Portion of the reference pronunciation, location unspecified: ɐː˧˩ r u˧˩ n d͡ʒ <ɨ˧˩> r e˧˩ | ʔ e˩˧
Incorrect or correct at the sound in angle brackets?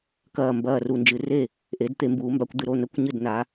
incorrect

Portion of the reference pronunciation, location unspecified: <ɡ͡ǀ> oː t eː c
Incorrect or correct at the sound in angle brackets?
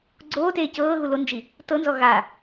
correct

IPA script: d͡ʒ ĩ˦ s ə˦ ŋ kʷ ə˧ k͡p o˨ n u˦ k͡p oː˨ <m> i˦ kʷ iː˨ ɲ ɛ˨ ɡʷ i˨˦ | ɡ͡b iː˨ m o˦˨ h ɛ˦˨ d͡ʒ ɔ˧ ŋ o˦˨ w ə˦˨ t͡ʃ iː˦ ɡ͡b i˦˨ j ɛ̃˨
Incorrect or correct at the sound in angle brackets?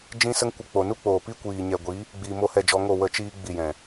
incorrect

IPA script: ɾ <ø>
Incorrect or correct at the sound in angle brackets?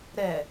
incorrect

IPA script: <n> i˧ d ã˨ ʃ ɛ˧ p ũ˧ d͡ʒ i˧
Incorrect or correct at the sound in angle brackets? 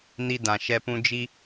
correct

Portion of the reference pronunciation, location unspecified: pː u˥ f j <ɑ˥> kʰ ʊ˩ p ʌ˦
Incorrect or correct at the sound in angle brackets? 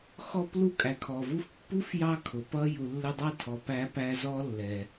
incorrect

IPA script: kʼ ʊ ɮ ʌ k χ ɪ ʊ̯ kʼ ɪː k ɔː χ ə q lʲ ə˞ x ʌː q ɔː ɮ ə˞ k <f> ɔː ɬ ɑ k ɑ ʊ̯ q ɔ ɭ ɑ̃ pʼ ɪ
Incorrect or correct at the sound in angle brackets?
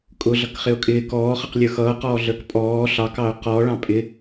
incorrect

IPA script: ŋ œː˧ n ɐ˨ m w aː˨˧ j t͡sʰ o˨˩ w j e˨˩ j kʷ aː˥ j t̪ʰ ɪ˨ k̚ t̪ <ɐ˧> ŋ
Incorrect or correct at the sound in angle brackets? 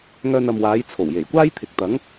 incorrect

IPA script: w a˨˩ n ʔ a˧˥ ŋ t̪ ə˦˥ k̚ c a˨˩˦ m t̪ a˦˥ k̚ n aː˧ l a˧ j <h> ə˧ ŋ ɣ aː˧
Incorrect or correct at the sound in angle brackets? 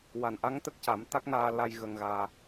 incorrect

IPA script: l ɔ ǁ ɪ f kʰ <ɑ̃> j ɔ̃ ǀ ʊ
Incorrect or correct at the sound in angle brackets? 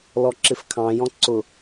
correct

